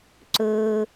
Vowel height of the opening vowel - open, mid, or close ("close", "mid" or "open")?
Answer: mid